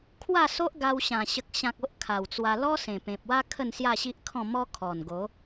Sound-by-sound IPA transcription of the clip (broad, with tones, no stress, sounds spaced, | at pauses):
kʰ w a˥˧ s o˦ ʔ ɡ a˧ w ɕ ã˨˩ ɕ ə˨ k̚ ɕ ã˨ k̚ o˦ ʔ kʰ a˨˩ w t͡s w a˧ l ɔ˦ s ẽ˨˩ p ẽ˨ p̚ w a˦ kʰ ə˥˧ n s j a˥˧ ɕ i˦ ʔ kʰ ɔ̃˥˧ m ɔ˦ kʰ ɔ˨˩ n ɡ o˨˦